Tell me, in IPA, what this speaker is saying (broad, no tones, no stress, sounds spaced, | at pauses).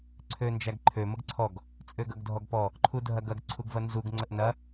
ǀʰ ø n d͡ʒ æ ɡ ǃʰ ø m ə ɡ ǀʰ ɔ ɡ | t͡sʼ ø ɡ ɐ ɡ dʱ ɔ ɡ p ɔ | ǃʰ u dʱ ɐ ɡ ɐ ɡ ǀʰ u ɡ v ɐ n z u ɡ ŋ͡ǀ ə ʔ n ɐ